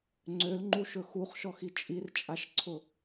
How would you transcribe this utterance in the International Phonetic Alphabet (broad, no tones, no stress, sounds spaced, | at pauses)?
ŋ͡ǀ ø l ŋ͡ǃ u ʃ ɵ x u χ ʃ ɔ x i t͡ʃʼ i r t͡ʃʼ a ʃ ǀʰ ʊ